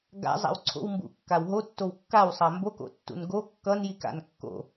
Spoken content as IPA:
ɡ a̰ zˤ a̰ w ǀʰ o̰ w m b ṵ kː a w ɦ o tː o w kː a w sˤ a m b o k o̰ tː ṵ n ɡ o kː ʌ n j i k a̰ n kː o̰

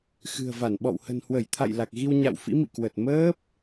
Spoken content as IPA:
x ɨ̤˨˩ ə̯ v a˧˩ n ɓ ɔ̰˧˨ w h ə̤˨˩ n h w ə˧˩ j t̪ʰ a̰˧˨ j l a˨˩ k̚ ɣ i˧ w ɲ a̰˧˨ w f ḭ˧˥ m ḭ˧˨ k w ə˨˩ t̚ m əː˦˥ p̚

